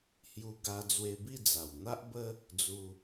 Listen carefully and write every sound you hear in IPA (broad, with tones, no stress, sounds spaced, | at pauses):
h j u˧ ɡ a˧ d͡z w e˧ b i˥˧ d͡z a˨˩ w n̪ a˦ ʔ b ə˦ | d͡z u˧